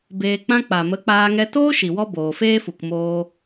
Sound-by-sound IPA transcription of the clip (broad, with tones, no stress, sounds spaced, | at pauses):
b eː˧ k͡p ã˦ k͡p a˨ m ə˨˦ k͡p aː˧ ŋ ɛ˧ t oː˦ ʃ i˨ w ɔ˧ b oː˨ f eː˦ f u˨ k m oː˧